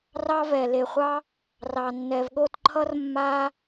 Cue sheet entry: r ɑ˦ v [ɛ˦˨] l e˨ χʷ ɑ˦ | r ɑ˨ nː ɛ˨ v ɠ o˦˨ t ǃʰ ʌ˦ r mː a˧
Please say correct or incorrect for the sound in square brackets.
incorrect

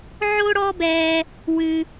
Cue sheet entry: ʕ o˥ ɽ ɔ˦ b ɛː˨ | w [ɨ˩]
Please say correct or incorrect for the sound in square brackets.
correct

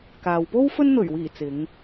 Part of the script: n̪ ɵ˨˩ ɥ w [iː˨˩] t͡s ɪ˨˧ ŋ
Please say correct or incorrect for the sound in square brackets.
correct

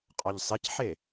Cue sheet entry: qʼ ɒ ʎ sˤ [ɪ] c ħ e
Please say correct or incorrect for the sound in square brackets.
correct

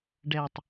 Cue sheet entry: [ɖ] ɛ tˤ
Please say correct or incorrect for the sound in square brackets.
correct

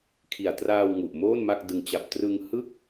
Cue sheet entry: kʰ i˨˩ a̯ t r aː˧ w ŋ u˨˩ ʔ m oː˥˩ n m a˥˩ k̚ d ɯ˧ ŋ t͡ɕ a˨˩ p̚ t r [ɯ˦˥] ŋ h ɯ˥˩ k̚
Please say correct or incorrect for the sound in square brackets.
incorrect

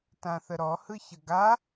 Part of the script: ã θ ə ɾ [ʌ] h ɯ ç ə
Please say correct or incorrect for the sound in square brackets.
incorrect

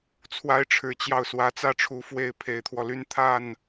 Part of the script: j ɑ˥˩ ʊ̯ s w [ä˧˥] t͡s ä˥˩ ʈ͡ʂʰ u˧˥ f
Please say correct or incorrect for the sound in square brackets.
correct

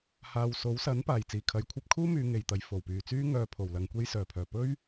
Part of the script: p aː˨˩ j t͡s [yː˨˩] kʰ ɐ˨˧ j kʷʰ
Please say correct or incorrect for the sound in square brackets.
incorrect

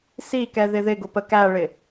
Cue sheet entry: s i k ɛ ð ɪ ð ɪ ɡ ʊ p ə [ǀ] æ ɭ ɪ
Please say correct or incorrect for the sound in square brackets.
incorrect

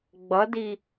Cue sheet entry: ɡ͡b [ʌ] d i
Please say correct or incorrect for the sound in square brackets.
correct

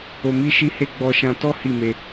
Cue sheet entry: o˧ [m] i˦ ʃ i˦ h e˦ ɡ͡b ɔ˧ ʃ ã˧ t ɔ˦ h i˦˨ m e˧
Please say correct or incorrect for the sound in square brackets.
correct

